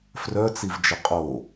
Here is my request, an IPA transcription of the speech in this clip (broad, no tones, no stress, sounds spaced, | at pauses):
f r œ t͡s i v d͡ʒ ə qʼ o